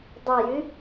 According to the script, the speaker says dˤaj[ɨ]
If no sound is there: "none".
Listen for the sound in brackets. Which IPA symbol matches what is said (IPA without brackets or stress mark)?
ɨ